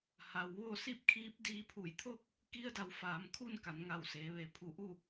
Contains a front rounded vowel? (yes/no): no